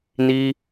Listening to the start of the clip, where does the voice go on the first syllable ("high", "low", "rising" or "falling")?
high